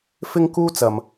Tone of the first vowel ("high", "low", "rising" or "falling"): high